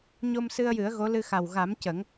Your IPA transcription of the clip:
ɲ o˧ m s ɨ˧ ə̯ j ɨ˨˩˦ ə̯ ɣ o˧˥ l ɨ˧ x a˨˩ w ɣ a˨˩˦ m c ə˨˩˦ ŋ

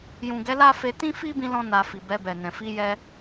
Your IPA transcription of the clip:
j ũ˨ ɡ ɛ˨˦ l a˦ f e˧ t ĩ˦ f i˦ b ĩ˧ l ɔ̃˧ n a˨ f i˨ b ɛ˧ b ɛ˨ n ɛ̃˨ f i˧ j ɛ˧

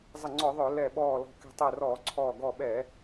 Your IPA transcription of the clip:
zˤ ə˧˩ ŋ͡ǀ ɔ˧˩˧ ðˤ œ˧˩˧ l ɛ˧˩ ɓ ɔː˧˩ l ɔ̤˧˩ k ɛ̤˧˩ tˤ ɛ˧˩ r ɔː˧˩˧ ǀʰ ɔː˧˩ ɡ ɔ˧˩ ɓ ɛ˧˩˧

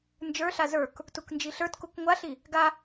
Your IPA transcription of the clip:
n d͡ʒ ə˞ ɬ a z ə˞ k | t u k n d͡ʒ i ɬ ə˞ t k u k ŋʷ a ɬ i | ɡ a

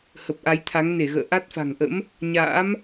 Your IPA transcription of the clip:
h ə˨˩ p̚ ʔ a˨˦ j t̪ʰ a˨˦ ŋ n e˧˩ ɣ ə̰ː˧˨ ʔ a˦˥ t̚ f a̤˨˩ ŋ ʔ ə̰˧˥ m | ɲ a̰ː˧˥ m

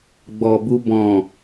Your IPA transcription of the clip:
ɡ͡b ɔ˨ b u˧ b ɔ̃˨

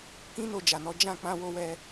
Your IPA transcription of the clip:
k ĩ˦ n o˦˨ d͡ʒ a˨ n ɔ˨˦ d͡ʒ ã˦˨ k͡p ã˧ w o˧ w ɛ˧

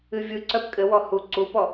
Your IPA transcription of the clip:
ɨ vʲ ɯ ǀ œ p kʼ ɘ w ɔ h u ǀ u p ɔ

